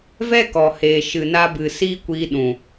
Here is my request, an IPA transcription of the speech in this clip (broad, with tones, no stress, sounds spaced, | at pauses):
v ɛ˦ k ɔ˨ h eː˨ ʃ ɨ˨ n a˧ b ɨ˨ s iː˦ kʷ iː˧ ɗ ũ˨